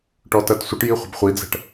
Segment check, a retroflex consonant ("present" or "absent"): present